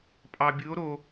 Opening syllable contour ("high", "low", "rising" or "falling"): low